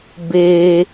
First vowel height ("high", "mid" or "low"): mid